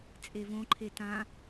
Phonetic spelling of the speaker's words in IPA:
t͡sʼ e v õ ǃʰ e t ã

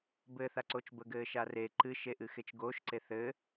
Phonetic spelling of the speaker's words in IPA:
b ɘ θ a ǀ o t͡ʃ b ə ɡ ɘː ʃ a r e ǃ ɨ ʃ e ʔ ɨ x e t͡ʃ ɡ o ʃ ǀ e θ ɘ

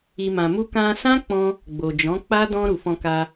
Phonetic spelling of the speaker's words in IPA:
i˨ m ã˨ m u˧ k ã˧ s ã˦ k͡p ɔ̃˧ | ɡ͡b o˨ d͡ʒ ɔ̃˨˦ k͡p a˦ d ɔ̃˧ ɾ u˨ f ɔ̃˧ k a˧

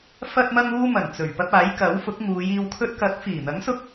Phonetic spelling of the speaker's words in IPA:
f ɐ˥ t̚ m ɐ˥ ŋ uː˥ m ɐ˨˩ n t͡s ɵ˨˩ ɥ p ɐ˧ p̚ aː˨˥ j k ɐ˨˥ w f ʊ˨˥ k̚ ŋ uː˨˧ j iː˨ w kʰ ɵ˧ t̚ k ɐ˨˥ k̚ f iː˨˩ n̪ ɐ˨˥ ŋ s ʊ˧ k̚

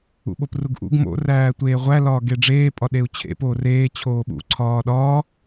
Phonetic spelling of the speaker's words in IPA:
ṵ ɓ o p r u ɡ ʔ ṵ ɡ m o̰ r æː tʷ eː ʁʷ æ l ɒː ɡ e ɖ͡ʐ eː pʼ ɒ ɗ e u̯ t͡ɕʰ ḛ p oː r eː t͡ɕʰ oː ɓ ṵ ǀʰ ɒː ɗ ɒː

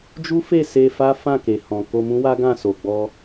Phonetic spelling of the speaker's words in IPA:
d͡ʒ u˦ f e˦˨ s e˧ f a˦ f ã˦˨ k e˨ h ɔ̃˨ k o˧ m ũ˦ w a˦ ɡ ã˦˨ s o˨ ɡ͡b ɔ˧

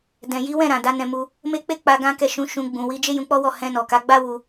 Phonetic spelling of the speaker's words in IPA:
d ɛ̃˨ j i˨˦ w ɛ̃˦˨ ɾ ã˨ d a˨˦ n ɛ̃˧ m u˧ | m e˦ k͡p e˦ k͡p a˧ ɡ ã˦ k ɛ˦˨ ʃ ũ˨˦ ʃ ũ˧ ɡ͡b ũ˨ w i˧ d͡ʒ e˦ j ũ˧ k͡p ɔ˦ w ɔ˦˨ h ɛ̃˧ n ɔ˨ k a˨˦ ɡ͡b a˦ w u˧

